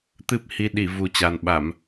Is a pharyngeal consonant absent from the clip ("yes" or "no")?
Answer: yes